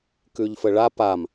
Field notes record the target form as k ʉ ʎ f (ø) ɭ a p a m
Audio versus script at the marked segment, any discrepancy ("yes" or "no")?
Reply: yes